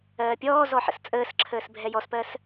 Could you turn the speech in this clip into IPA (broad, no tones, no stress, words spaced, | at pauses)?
ɜːpʲɔːzɔ ħə̰st͡sʼəːsǁʰəːs bʱɛjɔspɜs